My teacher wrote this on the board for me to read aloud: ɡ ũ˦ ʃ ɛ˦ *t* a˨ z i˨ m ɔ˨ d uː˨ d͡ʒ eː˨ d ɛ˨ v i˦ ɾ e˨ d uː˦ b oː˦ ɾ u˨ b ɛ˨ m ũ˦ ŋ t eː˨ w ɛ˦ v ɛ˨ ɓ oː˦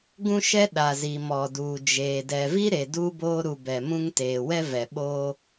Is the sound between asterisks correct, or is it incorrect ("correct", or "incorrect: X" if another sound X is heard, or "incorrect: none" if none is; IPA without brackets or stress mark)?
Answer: incorrect: ɗ